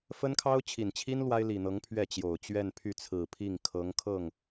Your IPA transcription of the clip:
f ə˥ n kʰ ɑ˥ ʊ̯ t͡ɕʰ i˨˩ n t͡ɕʰ i˥ n l w a˥ ɪ̯ l i˨˩ n̪ ɤ˧˥ ŋ pʰ ɥ ɛ˥˩ t͡ɕ j o˨˩ ʊ̯ t͡ɕ ɥ ɛ˥˧ n pʰ y˥˩ t͡sʰ ɹ̩˨˩ pʰ i˥˩ ŋ kʰ ɤ˧˥ ŋ kʰ ɤ˥˩ ŋ

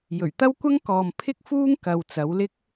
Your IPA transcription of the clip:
j ɵ˨˩ ɥ t̪ ɐ˥ w kʷ ɐ˥ ŋ k ɔː˨ m pʰ ɪ˥ k̚ f uː˥ ŋ k ɐ˧ w t͡s ɐ˨˧ w l ɪ˥ k̚

